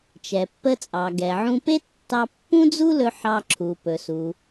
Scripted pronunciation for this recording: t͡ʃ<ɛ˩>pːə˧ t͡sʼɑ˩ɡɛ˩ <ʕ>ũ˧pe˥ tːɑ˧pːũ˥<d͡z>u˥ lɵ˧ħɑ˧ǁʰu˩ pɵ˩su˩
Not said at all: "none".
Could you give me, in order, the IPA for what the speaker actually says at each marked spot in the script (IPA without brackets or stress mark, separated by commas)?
ɛ˩, ʕ, d͡z